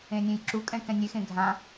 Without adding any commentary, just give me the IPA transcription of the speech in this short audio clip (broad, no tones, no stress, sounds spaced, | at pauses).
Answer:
ẽ nʲ ẽ j ǁ u kʼ ɛ̃ k ɛ̃ nʲ e x ẽ ɡʱ ã